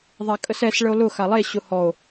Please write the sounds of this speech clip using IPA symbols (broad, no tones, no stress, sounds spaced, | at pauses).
ðˤ a kʼ ə s ɛ s ɭ ə o̯ l ʊ x a lˠ e ɕ ʊ h ɔ o̯